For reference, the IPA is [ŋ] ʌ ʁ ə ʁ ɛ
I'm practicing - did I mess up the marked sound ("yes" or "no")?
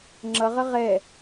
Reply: yes